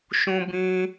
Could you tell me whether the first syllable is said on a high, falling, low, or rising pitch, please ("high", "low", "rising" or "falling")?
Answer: high